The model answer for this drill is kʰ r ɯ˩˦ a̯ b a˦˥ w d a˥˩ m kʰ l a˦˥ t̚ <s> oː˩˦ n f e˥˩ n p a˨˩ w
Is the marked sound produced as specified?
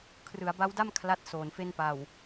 yes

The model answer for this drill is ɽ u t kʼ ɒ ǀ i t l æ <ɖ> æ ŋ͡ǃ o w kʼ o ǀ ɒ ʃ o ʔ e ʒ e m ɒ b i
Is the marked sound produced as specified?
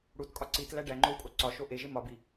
yes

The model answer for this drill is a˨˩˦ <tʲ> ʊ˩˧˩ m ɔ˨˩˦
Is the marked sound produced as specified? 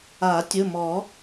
yes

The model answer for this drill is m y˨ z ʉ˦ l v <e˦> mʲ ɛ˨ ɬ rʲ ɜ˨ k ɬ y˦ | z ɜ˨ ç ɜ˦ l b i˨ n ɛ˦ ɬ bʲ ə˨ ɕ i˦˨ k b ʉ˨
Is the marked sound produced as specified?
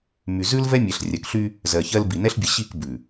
no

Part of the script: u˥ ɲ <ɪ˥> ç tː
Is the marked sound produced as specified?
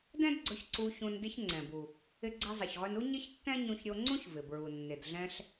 yes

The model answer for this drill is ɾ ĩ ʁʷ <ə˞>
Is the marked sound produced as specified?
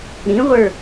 yes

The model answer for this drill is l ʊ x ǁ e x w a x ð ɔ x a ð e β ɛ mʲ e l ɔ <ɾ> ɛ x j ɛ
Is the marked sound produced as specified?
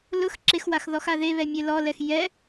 no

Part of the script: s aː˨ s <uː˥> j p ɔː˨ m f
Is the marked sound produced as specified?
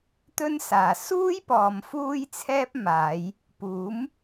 yes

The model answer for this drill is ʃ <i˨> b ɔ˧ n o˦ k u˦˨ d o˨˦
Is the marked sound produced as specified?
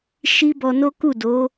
no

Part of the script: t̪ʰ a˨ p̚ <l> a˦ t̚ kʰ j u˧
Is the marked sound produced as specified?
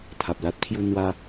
yes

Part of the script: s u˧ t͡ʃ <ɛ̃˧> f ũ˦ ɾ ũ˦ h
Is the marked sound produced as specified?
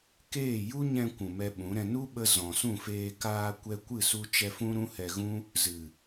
no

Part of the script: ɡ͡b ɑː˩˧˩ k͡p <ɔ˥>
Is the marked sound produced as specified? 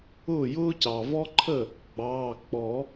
no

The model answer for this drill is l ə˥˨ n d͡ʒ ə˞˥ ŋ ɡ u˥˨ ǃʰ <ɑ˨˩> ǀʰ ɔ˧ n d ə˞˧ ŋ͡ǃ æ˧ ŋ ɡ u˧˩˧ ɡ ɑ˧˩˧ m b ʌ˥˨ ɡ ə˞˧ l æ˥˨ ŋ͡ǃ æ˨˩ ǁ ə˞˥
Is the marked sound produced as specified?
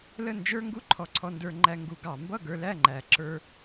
no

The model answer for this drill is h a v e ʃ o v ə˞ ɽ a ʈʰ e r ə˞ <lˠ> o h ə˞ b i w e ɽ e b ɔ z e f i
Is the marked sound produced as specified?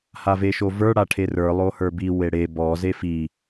yes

